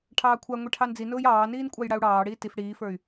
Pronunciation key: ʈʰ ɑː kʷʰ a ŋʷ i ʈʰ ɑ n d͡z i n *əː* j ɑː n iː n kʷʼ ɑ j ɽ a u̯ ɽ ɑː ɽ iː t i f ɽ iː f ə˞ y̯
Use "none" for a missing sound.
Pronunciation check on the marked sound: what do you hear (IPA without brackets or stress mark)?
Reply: ʊː